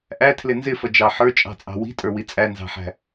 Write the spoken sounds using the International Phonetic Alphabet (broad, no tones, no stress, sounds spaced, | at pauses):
ʔ æ tʰ l ɪ n z ɪ f ʌ d͡ʒ ɑ ħ ə˞ t͡ʃʼ ɑ̤ t͡sʼ ɑ̤ w i̤ tʼ ə˞ w i t͡sʼ æ n z ɑ̤ ħ æ̤